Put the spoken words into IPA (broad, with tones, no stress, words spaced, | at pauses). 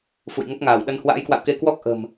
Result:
fṵ˧˨jŋə˦˥p̚ŋaː˧˩wɗə˧n hwa̰ː˧˥jkwa̰˧˨wke˧ kwɔ˦˥k̚ ʔə̤˨˩m